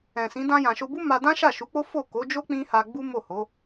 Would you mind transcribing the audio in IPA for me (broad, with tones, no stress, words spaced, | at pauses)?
ɛ̃˨sĩ˨˦ dã˧jã˨ʃo˧bu˦ ma˧ dã˦ʃa˦˨ʃu˨˦k͡po˦ fo˦˨ko˨˦d͡ʒo˦ k͡pĩ˦ha˧ ɡ͡bu˦mo˦˨ho˨˦